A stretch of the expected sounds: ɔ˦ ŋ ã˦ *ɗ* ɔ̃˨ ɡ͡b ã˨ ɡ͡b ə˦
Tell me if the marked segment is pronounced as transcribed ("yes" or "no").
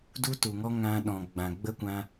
yes